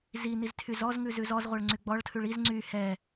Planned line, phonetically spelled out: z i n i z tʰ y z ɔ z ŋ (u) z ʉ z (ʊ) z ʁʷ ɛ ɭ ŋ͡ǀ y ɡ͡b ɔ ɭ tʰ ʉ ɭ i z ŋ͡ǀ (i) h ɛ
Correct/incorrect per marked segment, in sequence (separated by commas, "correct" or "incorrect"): incorrect, incorrect, incorrect